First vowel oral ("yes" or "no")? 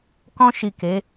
no